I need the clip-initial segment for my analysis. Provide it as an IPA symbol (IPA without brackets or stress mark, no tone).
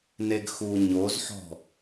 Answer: n